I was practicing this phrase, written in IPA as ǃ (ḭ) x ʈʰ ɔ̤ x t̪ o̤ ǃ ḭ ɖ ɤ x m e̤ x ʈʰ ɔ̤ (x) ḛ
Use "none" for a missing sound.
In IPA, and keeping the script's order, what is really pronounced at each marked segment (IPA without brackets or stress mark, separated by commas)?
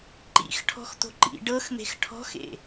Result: ḭ, x